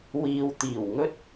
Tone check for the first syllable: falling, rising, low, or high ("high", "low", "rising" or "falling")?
low